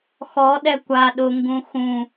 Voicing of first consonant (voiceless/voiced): voiceless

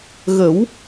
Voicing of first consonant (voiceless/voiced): voiced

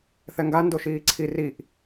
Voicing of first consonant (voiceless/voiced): voiceless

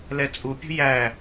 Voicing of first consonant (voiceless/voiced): voiced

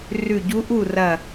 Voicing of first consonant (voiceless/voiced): voiced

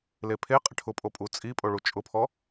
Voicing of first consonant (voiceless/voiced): voiced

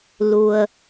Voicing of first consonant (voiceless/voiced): voiced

